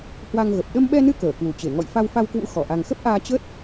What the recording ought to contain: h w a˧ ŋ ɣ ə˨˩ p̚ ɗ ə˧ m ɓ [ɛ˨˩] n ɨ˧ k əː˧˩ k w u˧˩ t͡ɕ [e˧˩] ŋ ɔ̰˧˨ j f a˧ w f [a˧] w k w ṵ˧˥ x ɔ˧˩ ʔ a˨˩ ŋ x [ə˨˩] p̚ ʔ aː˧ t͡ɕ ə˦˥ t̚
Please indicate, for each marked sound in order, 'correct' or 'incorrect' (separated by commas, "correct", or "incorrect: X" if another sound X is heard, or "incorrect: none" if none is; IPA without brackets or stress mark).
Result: incorrect: ɛ˧, correct, correct, incorrect: ə˦˥